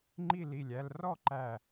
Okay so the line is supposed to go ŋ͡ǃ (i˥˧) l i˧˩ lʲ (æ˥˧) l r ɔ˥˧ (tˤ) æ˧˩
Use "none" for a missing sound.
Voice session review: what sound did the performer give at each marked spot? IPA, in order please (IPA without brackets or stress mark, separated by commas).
i˥˧, æ˥˧, ǃ